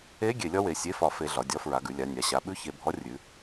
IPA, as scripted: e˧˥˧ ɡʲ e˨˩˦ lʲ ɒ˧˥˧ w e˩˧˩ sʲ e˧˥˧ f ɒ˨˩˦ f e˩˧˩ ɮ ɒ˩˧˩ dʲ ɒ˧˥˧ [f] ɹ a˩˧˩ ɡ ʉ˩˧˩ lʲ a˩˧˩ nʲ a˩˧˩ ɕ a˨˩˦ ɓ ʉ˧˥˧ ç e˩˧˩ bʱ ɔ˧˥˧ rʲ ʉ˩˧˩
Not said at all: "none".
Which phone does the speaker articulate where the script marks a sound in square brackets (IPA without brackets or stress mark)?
f